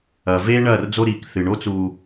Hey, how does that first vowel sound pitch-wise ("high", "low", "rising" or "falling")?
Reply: low